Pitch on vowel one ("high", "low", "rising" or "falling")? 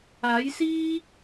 rising